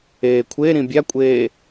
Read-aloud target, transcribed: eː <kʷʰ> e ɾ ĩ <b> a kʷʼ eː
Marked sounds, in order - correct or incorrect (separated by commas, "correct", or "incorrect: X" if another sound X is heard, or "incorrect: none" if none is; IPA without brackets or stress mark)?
correct, incorrect: bʲ